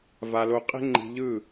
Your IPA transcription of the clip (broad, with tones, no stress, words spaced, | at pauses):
va˧lo˧qʼe̤˦ ŋ͡ǃi̤˧ʎɯ˦˨